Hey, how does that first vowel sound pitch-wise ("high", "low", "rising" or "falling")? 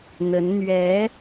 rising